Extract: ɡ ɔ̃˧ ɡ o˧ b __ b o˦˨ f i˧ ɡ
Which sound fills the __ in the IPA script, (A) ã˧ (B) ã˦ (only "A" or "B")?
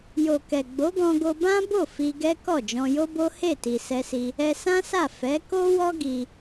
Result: B